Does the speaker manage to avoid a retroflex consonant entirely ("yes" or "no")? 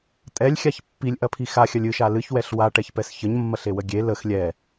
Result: no